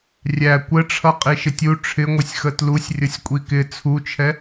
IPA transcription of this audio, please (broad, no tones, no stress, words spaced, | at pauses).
rʲæ kʷəʈ͡ʂʰʌ qʼiʃɪtʲu ʈ͡ʂʰɪŋʷɪsʲxə tlusʲ rʲʌsʲkʷʼikɪ t͡sʰut͡ʃʰɛ